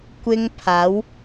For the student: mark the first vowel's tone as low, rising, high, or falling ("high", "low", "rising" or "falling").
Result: high